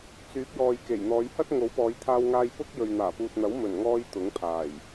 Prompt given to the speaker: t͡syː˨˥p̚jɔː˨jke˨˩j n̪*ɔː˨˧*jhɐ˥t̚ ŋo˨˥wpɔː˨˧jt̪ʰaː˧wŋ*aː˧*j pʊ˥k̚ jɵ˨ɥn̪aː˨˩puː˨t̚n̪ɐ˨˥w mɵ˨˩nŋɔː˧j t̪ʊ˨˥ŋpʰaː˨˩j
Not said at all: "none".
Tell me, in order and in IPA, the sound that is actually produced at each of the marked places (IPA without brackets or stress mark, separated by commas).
ɔː˨˧, aː˧